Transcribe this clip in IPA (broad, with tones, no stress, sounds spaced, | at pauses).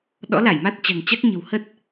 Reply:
ɗ ɔ̰˧˥ l a˧˩ j m a˦˥ t̚ t͡ɕ a̤˨˩ ŋ t͡ɕ a˦˥ k̚ ɲ ə̤˨˩ w h ə˦˥ t̚